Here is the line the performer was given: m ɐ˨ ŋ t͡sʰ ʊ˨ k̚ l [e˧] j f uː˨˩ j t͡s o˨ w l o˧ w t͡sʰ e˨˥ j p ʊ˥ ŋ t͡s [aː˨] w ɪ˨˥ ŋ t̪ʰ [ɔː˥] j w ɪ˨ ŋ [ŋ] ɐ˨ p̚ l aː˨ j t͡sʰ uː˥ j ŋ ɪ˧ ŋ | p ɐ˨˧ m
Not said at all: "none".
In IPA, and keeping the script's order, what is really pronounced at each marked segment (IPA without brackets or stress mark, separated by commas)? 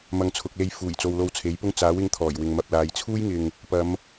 e˧, aː˨˥, ɔː˨˩, m